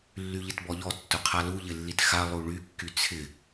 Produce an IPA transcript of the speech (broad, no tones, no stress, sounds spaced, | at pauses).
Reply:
lː y ʎ ɪ t b ɔ ʎ ɔ tː ʊ qʰ a l u ʎ ɪ lː i t x a lˠ u ɭ y kː y t͡sʰ ɪ